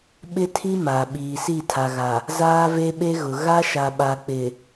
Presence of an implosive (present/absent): present